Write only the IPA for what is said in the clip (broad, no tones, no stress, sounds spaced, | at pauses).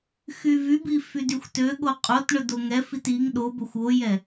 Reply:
x y v y b i f y d y xʷ t ø ɠ o qʼ o t ɳ ɵ d o ŋ ɛ f i t i ŋ ɗ o b ɵ xʷ o j ɛ